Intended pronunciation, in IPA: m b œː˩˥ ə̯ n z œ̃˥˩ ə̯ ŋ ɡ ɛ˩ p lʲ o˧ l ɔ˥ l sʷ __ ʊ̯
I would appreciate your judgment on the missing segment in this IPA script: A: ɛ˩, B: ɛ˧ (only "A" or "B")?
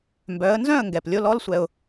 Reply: B